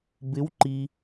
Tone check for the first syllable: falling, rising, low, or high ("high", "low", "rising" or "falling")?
rising